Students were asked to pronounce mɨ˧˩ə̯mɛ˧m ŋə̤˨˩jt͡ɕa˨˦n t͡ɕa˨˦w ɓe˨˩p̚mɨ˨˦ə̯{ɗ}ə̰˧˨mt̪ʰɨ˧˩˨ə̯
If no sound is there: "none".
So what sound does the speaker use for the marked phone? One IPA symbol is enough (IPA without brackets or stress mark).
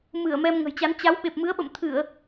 ɓ